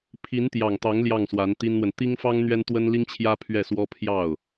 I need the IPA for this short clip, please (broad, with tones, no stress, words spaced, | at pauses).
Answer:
pʰi˧˥nt̪jɑ˨˩ŋt̪ɑ˧˥ŋ ljɑ˥˩ŋswa˧˥nt̪i˥nn̪wə˨n t̪i˥ŋfɑ˥ŋ n̪ɥɛ˥nt̪wə˥nli˥ŋt͡ɕʰjä˥ pʰɥɛ˥˩swɔ˥ pʰjɑ˥˩ʊ̯